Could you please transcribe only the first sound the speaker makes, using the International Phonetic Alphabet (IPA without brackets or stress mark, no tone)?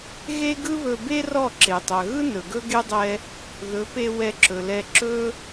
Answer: ɣ